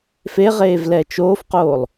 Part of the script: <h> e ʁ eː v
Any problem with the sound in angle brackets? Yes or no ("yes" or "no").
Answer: yes